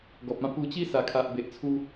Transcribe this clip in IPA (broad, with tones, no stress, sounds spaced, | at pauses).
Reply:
ɡ ɔ˨ p̚ ã˥˧ p u˧ t͡ɕ i˦ s a˨˩ kʰ a˨ ʔ b e˨ ʔ t͡sʰ u˧